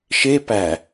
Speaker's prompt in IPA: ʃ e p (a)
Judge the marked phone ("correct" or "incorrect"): incorrect